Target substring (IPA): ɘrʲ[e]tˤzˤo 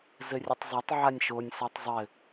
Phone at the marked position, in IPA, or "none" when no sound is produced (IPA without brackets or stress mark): ɨ